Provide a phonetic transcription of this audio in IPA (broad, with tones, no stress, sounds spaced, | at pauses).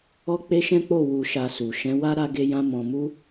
ɔ˦ k͡p e˦ ʃ ɛ̃˦ k͡p o˦˨ w u˧ ʃ a˧ s u˨ ʃ ɛ̃˨˦ w a˦ ɾ a˦ ɡ e˦ j ã˦ m ɔ̃˧ m u˦